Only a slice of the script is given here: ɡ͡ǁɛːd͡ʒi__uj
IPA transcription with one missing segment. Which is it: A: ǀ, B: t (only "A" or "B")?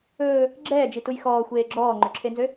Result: B